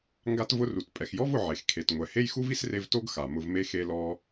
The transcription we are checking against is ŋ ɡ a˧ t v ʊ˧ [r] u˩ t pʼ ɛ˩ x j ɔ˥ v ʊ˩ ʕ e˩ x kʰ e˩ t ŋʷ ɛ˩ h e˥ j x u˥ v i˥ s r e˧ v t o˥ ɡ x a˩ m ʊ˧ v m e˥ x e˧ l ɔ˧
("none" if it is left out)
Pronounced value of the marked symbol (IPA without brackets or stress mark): r